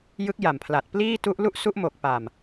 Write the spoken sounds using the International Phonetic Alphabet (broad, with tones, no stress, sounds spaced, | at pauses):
j ɯ˦˥ k̚ j a˨˩ m pʰ l a˨˩ t̚ p l iː˥˩ t u˦˥ ʔ l u˥˩ ʔ s u˦˥ ʔ m o˨˩ k̚ p a˨˩ m